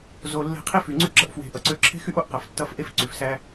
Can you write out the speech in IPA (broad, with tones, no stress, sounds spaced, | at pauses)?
z o˧ lː e̤˦ qʰ i˦ f y˨ ŋ͡ǀ y˦ ɡ͡ǁ ʌ˧ ʔ f w e̤˨ ʔ ʌ˨ ǀ ø˧ ǁʰ e̤˦ x y˦ ʔ o˧ ʔ q ʌ˨ f tː ʌ˧ f ʔ e˦ f ǀ y˨ f s æ˦